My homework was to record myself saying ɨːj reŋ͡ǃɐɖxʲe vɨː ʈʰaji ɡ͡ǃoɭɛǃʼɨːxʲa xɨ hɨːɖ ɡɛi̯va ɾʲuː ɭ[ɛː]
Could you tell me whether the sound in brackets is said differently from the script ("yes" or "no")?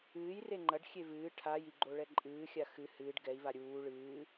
yes